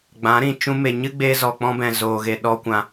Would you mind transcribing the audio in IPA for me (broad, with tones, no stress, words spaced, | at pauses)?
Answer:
ɡ͡bã˨˦ɾĩ˨ t͡ʃũ˦ me˨ɲɨ˦ ɡ͡beː˦zɔ˨k͡pɔ̃˦bɛ̃˨ zoː˨ɣe˨ ɗɔ˧kʷã˨